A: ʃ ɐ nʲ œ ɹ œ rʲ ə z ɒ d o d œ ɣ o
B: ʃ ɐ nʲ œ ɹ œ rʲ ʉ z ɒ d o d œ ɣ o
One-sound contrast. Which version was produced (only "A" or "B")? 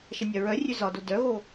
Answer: B